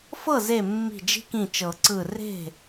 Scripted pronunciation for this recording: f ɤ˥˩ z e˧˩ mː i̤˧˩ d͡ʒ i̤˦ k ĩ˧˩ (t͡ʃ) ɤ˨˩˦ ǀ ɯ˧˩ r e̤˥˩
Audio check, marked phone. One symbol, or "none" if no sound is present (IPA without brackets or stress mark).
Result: t͡ʃ